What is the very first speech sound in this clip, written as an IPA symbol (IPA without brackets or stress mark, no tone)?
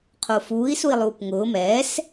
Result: qʰ